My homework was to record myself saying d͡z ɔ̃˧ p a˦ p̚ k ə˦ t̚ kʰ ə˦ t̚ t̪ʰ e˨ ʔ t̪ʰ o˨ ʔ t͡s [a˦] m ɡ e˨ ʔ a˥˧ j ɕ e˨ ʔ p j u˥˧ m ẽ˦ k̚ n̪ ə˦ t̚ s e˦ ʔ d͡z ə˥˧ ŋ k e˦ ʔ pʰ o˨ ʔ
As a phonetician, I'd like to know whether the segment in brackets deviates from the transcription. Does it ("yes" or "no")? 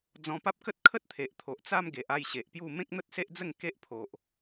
no